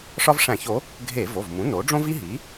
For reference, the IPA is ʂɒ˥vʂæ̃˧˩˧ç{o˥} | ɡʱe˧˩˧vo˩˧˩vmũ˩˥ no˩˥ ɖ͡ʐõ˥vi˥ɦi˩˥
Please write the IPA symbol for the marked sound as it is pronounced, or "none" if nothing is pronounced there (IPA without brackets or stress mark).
o˩˥